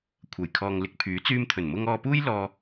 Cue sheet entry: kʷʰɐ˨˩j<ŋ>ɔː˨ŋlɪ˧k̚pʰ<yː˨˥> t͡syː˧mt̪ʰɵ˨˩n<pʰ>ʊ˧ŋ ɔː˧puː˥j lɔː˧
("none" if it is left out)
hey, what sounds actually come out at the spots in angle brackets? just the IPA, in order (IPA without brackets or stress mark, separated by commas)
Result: kʰ, yː˨˥, m